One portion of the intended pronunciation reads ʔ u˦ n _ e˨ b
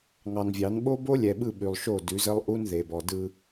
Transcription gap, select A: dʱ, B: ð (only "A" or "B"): B